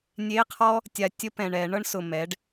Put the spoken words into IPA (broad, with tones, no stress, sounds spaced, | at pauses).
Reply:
nʲ e˧˥˧ qʰ ɔ˥ | tʲ a˨ tʲ ə˥ p ɛ̃˨ ɳ ɛ˨˩˦ ɳ ɤ˥ ɳ s ʊ˨ m ɛ˩˥ ɖ